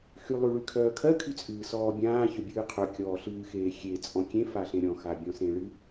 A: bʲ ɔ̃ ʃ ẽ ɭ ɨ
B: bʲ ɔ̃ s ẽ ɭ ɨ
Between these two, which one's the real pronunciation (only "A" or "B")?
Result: B